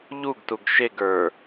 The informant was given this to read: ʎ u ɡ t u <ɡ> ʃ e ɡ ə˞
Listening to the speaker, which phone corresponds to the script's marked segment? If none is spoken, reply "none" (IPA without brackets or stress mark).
ɡ